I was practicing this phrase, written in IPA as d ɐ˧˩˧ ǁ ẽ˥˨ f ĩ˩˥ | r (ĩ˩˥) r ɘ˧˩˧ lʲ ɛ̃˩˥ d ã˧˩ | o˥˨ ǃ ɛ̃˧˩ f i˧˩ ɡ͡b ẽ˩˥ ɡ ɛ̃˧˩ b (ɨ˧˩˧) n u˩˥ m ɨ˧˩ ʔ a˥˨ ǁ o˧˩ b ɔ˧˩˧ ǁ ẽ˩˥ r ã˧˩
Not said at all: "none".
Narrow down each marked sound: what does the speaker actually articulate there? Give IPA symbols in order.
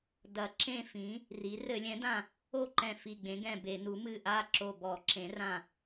i˩˥, e˧˩˧

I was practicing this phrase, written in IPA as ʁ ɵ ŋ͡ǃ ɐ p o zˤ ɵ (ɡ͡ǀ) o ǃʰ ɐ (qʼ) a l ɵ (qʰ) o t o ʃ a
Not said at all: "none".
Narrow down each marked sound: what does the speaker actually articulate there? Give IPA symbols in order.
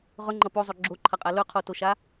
ɡ͡ǁ, qʼ, qʰ

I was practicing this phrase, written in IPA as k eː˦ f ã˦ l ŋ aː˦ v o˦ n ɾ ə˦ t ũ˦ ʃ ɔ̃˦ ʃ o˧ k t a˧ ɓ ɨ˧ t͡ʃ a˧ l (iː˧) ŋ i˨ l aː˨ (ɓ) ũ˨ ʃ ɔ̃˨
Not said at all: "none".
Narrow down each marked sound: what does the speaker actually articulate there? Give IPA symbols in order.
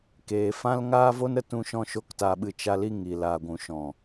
i˧, ɡʷ

